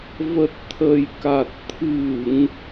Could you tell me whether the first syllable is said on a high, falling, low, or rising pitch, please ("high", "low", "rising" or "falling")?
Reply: low